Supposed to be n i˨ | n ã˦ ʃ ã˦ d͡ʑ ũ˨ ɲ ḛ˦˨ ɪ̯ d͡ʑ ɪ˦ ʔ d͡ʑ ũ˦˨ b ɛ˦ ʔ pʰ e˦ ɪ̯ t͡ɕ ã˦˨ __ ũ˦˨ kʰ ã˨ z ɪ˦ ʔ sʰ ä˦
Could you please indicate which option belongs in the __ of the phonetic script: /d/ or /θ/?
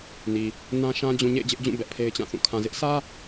θ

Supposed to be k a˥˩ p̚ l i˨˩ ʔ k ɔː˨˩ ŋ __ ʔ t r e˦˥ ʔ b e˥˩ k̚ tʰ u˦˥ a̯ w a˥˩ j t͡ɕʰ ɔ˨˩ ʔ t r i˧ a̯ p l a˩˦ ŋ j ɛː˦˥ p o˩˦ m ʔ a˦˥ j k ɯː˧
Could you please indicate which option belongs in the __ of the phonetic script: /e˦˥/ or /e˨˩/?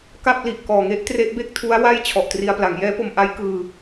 e˦˥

